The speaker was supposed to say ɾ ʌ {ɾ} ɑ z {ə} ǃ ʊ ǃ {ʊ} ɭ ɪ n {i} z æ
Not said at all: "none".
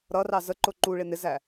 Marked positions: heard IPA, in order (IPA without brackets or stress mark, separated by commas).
r, ə, u, ɪ